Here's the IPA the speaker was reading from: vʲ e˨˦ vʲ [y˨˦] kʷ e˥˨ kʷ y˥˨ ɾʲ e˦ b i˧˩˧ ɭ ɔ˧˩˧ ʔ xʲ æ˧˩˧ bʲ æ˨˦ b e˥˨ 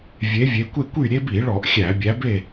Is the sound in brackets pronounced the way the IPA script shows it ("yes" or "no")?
no